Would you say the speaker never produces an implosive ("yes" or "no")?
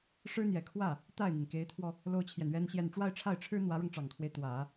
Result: yes